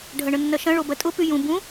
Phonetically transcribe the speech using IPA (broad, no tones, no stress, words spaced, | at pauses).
ɖʱɐɳənːɐʃɐ̃ ɭobɐtʼʊ pyjũ bũ